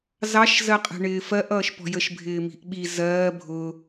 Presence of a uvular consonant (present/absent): present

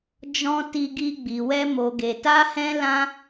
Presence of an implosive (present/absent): absent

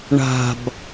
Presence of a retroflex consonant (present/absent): present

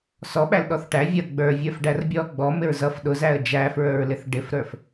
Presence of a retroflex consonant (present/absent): present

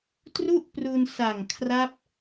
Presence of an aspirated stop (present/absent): present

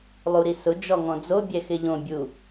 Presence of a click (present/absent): absent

